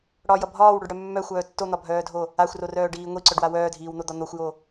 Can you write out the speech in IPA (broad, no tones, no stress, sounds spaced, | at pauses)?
ɽ ɒ j ʌ bʱ ɒː w ɽ o ɖ ɽ œ mː œ xʷ œː tː o n̪ ɒ bʱ œː dʱ o | a xʷ r o r œː ɖ iː ŋʷ i ǀ œ ɖ w a w œː dʱ iː w n̪ o d̪ ɒ n̪ o xʷ j o